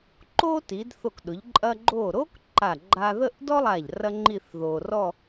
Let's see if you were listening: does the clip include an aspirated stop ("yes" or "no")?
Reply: no